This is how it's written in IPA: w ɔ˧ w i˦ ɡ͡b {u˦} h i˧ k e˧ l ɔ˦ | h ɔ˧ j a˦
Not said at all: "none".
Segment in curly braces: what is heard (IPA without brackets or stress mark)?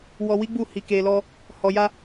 u˦˨